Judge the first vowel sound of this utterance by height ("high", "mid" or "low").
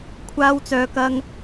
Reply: low